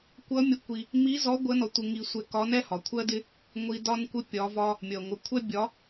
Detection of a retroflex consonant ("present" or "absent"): absent